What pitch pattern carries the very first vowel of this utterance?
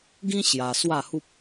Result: high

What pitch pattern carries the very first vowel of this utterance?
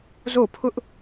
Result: falling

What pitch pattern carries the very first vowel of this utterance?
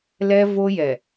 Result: high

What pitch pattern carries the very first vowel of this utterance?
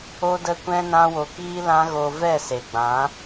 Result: high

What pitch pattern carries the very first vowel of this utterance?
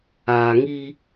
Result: low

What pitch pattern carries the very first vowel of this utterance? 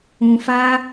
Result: low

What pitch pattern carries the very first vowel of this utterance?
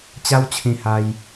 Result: high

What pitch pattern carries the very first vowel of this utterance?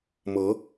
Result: rising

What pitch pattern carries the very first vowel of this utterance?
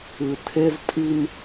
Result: low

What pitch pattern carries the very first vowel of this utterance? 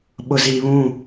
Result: low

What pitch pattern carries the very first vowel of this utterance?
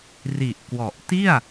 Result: low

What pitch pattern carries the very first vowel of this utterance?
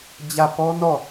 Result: falling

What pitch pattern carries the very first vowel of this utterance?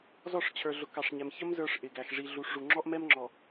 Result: falling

